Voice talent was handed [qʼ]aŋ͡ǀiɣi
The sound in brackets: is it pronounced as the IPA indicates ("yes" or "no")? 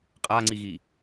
yes